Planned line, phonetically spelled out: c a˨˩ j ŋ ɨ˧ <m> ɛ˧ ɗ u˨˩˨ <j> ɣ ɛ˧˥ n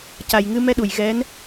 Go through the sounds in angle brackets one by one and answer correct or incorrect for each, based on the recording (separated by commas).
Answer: correct, correct